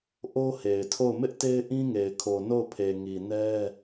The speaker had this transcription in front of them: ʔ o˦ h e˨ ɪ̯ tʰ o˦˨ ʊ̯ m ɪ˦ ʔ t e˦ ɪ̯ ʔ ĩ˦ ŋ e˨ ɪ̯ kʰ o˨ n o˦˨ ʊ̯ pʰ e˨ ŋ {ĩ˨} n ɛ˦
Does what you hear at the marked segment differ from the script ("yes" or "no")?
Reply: yes